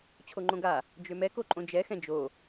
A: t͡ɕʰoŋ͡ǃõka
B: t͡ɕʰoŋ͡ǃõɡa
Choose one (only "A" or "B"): B